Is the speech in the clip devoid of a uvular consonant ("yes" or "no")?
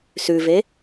yes